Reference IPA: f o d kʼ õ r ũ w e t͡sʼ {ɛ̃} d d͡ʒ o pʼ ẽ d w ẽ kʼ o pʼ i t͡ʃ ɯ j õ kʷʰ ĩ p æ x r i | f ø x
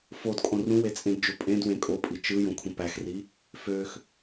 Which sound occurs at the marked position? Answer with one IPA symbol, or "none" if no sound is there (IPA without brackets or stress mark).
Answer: ẽ